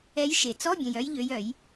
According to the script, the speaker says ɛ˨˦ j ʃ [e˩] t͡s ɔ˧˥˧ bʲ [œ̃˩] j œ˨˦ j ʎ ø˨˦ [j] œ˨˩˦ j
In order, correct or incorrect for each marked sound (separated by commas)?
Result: correct, correct, correct